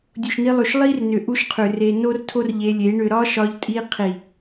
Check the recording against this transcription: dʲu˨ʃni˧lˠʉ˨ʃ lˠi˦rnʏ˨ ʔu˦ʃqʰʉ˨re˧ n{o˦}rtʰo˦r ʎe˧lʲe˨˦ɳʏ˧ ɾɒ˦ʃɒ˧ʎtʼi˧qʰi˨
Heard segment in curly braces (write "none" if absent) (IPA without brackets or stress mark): o˦